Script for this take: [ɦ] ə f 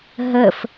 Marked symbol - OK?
yes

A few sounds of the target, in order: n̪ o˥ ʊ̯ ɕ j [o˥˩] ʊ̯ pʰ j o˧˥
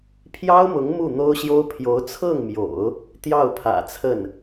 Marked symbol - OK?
no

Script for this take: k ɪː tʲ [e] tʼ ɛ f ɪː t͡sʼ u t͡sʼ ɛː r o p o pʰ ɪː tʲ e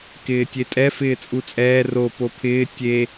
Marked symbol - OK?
yes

